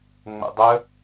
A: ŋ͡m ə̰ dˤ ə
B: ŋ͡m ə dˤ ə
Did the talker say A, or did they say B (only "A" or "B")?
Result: A